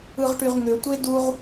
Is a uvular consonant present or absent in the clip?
present